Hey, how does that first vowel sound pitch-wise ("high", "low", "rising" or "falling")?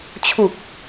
low